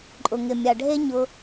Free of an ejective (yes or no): no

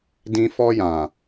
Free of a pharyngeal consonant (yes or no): yes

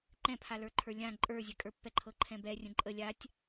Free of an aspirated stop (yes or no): no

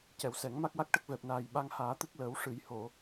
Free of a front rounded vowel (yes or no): yes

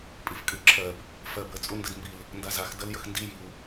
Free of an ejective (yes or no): no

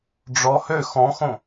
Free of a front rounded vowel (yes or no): no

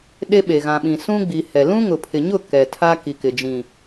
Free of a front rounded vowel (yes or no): yes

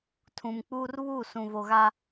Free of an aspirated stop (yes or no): no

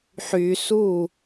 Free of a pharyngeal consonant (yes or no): no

